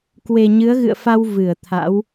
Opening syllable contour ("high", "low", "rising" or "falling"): low